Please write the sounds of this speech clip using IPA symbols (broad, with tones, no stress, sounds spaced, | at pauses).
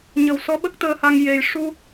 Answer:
ɲ ə˨˩ w s ɔ˧˥ ɓ ə˦˥ k̚ t̪ əː˧ h a˧ ŋ j e˨˩ j ʂ u˧